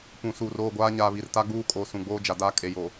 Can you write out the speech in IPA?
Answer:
p ũ˨ s uː˨ r oː˦˨ ɡʷ aː˦ ɲ aː˨ β i˨ r t a˦ ɡ͡b uː˦ kʼ oː˨ s ũ˨ ɡ͡b oː˦ d͡ʒ a˨ d aː˦ kʼ e˨ j o˨

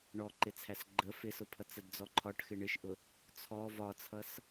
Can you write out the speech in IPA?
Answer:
ɳ ɔ ǃ ɪ t͡sʰ æ s ɡ͡ǃ ə f ɪ s ʊ pʰ ʌ t͡s ə d d͡z ɔ ǃʰ ɒ ʈ x ɪ ɳ ɪ ʃ ʔ ʊ | t͡sʰ ɔ v ɒ t͡sʰ ʌ s

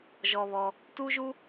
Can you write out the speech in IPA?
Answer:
ʒ ɔ˧ β ɔ˧ | t u˦ ʒ u˦

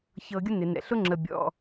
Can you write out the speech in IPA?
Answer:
ç ɤ˧ ɡʲ ʊ˥ n ɪ˩ n ɛ̰˩ ɬ ʊ˥ ŋ͡ǁ ə˩ bʲ ɔ̰˩

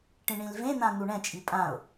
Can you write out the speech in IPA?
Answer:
ʈ ĩ ɳ ĩ l v ẽ n̪ ã n̪ u ɳ ɛ̃ t͡ʃʼ i pʼ ã ʊ̯

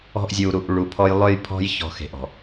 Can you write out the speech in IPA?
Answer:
ɔ̤˦ ʔ zʲ u˨ ɾ u˨ ʔ ɭ u˨ pʰ ɔ˦ j lˠ ø˦ j pʰ ɔ̤˦ j ç ɔ̤˨ x e̤˨ ʔ ɔ̤˨

